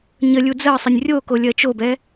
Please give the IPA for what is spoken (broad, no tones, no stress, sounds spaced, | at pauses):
ɲ ə lʲ u d͡z ɜ sˤ ɪ nʲ rʲ o k o lʲ ɜ t͡ʃ o b ɛ